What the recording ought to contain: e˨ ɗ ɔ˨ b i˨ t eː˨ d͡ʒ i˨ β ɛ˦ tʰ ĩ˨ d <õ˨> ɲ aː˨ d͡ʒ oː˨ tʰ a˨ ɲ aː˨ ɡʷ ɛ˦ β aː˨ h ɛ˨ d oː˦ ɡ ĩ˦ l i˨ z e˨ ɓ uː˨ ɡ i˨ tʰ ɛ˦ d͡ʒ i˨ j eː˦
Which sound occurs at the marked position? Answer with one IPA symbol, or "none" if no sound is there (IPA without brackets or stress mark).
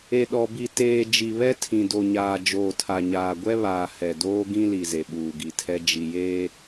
o˨